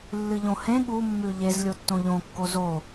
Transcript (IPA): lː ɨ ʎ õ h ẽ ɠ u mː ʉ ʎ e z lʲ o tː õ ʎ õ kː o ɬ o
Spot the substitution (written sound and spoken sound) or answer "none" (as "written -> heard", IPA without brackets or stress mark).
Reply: ɬ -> z